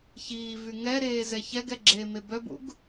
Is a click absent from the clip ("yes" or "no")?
no